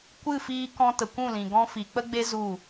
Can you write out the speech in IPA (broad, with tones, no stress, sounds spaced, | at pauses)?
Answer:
kʷ ɨ˦˨ f iː˧ k ɔ̃˧ t ə˨ kʷ ũ˦˨ l ĩ˨ ɡ ɔ̃˧ f i˨ k͡p ə˦ ɡ͡b e˦ z u˦˨